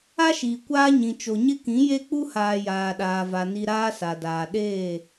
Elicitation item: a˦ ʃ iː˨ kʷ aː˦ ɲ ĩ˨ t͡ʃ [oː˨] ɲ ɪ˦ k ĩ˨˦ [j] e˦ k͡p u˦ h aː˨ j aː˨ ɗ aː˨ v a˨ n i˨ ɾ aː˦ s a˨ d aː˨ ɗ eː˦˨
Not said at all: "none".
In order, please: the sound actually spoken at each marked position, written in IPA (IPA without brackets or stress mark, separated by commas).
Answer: o˨, j